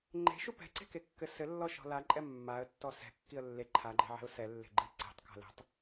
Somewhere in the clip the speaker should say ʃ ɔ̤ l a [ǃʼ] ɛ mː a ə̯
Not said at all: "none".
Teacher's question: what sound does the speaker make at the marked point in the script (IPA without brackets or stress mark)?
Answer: ǃʼ